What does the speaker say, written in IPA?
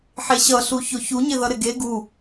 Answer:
ħ e ɕ ʌ ɬ u ç o ç u ɲ ɪ ð ʌ ɾ ɪ ɡ e ɡ u

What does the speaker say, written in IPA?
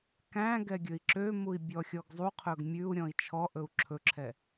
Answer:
k æ̃ ɡ ɛ ɡʲ ɵ i̯ ǁ ø m u i̯ bʲ ɔ xʲ ɔ ɡ zˤ u qʰ ɵ ɡ mʲ ʉ u̯ ɾʲ ɔ̃ i̯ t͡ʃʰ ɔ ʔ ɵ u̯ ǁʰ ɵ ǁʰ ɛ

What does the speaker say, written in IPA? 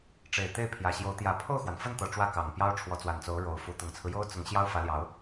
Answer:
ʈ͡ʂ e˨˩ ɪ̯ t̪ e˥˩ ɪ̯ pʰ j ä˨˩ ɕ j o˧˥ ʊ̯ t̪ j ä˧˥ pʰ o˥˩ ʊ̯ x w a˩ n f ə˥˩ n t̪ ɤ˨˩ ʈ͡ʂ w ä˥˩ k ɑ˨˩ ŋ p j ɑ˥ ʊ̯ ʈ͡ʂʰ w ɔ˧˥ t͡s w a˨˩ n t͡s o˧˥ ʊ̯ ɻ o˧˥ ʊ̯ f u˧˥ t̪ ʊ˨˩ ŋ t͡sʰ ɹ̩˦ j o˥ ʊ̯ t͡s ʊ˧˥ ŋ ɕ j ɑ˥ ʊ̯ f ä˧˥ l j ɑ˧˥ ʊ̯

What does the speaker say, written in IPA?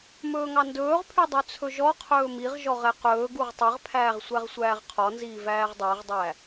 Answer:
m ɵː ŋ ɑ n d ɵː ʁ pʰ y dˤ ø t͡sʰ ɵ ʒ ɔ qʰ ɵː m i ʁ ʒ ɔ ʁ ɛ q ɵː ɡ u ʁ tˤ ɛ ʁ pʰ æː ʁ sʷ æ ʁ sʷ æː ʁ qʰ ɔ n z iː v æː ʁ dˤ æ ʁ dˤ æ

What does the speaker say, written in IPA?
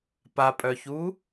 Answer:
p a pʼ œ ç u

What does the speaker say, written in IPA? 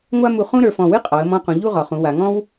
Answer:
ŋʷ a˥ m u˧ χ ũ˥ ɾ ə˞˩˧ f ɔ̃˧˩ w ɨ˥ qʼ ɒ˩˧ ə̯ m ɔ̃˧ q ũ˩˧ ʎ u˥˧ ʁ ɒ˩˧ χ ũ˩˧ w a˩˧ ŋ ɔ̃˥ w

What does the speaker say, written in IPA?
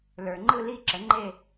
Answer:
l ə˞˩ ŋ͡ǃ ɯ˥˨ l i˥˨ ǁ ə˩˥ ŋ͡ǃ e˥˨

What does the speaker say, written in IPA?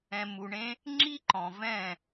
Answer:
ɛ̃˧ m u˧ ɳ ẽ˦ | ŋ͡ǁ i˦ ǃ ɔ̃˨ v ɛ̃˦˨

